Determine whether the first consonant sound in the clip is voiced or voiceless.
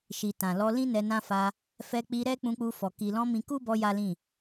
voiceless